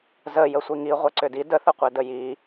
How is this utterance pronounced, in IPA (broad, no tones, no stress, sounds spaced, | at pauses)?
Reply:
z ə j ə sʷ i ŋ i ʁʷ ɛ ǀ ʏ d i d ə θ ə qʷ ɛ d ə j i